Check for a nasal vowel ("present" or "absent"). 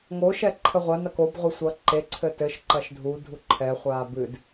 absent